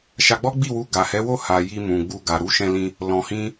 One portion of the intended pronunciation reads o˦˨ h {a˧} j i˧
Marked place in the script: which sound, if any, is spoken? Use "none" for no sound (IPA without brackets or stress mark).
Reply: a˨